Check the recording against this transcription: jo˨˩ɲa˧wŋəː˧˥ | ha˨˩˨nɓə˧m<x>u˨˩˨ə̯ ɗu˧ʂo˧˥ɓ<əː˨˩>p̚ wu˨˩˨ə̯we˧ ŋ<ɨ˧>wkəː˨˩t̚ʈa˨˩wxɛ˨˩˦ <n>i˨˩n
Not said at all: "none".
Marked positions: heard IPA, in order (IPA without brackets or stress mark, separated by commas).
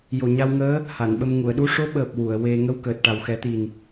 ŋ, əː˨˩, ə˧, t̪